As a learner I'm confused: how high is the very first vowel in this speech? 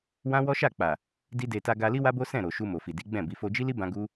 low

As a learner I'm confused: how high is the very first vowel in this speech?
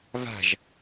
low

